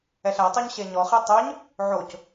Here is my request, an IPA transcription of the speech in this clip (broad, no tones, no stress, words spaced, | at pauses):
ɛɬætˤœɲ ɕeɲɔχe tˤœɲ | ʕoc